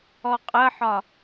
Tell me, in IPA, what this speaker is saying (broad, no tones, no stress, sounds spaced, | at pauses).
ɔ qʼ ə ħ ɒ